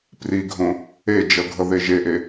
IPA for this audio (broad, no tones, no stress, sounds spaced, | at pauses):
p r i ɡʱ õ | e d͡ʒ ʌ ɡʱ ʌ ð e ʒ e ʔ e